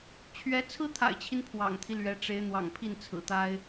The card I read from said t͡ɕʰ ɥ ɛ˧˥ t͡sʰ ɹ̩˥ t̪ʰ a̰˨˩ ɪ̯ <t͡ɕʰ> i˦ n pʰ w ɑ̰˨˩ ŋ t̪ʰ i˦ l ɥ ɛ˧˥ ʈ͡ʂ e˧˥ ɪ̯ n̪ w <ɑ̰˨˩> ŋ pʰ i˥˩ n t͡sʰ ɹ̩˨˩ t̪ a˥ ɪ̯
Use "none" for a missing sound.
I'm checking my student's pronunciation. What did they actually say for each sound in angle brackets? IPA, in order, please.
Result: t͡ɕʰ, ɑ̰˨˩

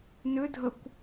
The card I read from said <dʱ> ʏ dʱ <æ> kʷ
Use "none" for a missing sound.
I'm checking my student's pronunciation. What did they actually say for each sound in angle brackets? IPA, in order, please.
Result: n, ə

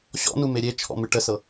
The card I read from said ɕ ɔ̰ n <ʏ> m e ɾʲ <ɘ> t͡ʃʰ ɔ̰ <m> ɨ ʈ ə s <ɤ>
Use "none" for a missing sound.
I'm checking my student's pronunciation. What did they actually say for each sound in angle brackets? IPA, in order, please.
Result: u, e, m, ɤ

